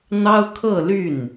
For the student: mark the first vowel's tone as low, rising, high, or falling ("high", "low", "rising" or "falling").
high